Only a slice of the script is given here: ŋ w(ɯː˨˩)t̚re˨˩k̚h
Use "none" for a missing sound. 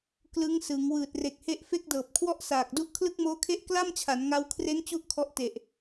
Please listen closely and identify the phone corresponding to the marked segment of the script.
ɯː˨˩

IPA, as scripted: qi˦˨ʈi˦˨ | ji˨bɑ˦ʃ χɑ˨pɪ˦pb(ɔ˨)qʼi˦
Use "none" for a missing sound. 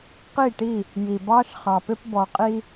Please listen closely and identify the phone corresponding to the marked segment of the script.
ɔ˨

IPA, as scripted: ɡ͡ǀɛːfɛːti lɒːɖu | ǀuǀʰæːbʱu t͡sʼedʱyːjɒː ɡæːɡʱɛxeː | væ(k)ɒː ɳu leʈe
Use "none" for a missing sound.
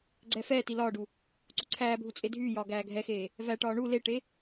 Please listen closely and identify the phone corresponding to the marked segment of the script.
ʈ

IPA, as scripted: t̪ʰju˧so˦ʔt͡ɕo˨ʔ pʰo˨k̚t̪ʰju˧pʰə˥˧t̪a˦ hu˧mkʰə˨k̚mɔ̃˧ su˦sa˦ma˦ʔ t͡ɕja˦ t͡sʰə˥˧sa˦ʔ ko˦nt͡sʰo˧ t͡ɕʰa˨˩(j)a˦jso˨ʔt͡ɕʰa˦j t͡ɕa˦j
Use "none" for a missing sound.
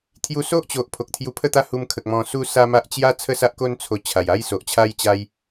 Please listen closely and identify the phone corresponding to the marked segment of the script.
j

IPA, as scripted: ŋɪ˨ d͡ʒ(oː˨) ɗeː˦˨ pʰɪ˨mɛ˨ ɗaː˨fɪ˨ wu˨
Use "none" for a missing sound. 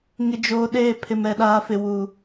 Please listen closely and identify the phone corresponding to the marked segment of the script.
oː˨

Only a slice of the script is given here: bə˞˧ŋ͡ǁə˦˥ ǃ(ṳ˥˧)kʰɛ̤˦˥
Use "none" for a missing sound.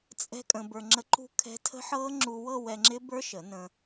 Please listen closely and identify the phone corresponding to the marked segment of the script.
ṳ˥˧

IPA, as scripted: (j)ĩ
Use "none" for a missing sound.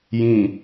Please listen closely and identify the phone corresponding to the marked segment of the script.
j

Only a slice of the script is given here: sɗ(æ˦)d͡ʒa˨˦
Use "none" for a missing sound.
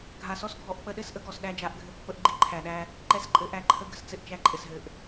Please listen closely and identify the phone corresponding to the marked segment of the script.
æ˦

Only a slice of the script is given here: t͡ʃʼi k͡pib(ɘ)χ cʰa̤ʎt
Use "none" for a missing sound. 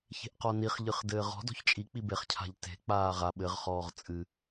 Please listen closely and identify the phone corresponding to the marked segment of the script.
e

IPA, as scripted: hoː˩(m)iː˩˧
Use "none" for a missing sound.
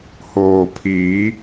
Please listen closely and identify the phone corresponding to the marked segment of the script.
pʰ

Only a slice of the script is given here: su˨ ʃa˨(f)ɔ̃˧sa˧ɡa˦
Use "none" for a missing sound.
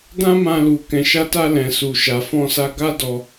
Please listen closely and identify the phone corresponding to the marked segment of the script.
f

